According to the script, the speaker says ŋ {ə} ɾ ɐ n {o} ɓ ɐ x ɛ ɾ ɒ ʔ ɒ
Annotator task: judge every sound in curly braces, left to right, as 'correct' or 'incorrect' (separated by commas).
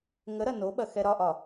correct, correct